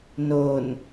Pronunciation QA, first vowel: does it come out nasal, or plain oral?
oral